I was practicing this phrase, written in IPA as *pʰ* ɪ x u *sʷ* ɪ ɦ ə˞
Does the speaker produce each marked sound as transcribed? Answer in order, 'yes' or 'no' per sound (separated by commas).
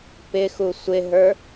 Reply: no, yes